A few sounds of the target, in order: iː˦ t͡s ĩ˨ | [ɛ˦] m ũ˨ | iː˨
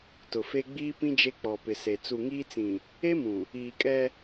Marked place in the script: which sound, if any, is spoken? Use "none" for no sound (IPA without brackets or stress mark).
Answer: e˦